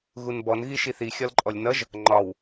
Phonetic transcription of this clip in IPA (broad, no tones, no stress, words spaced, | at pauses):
ɣunbɔn ɣiʃiθi xʲɒlǃʼɔlʲnʌʒ | ŋ͡ǃɒw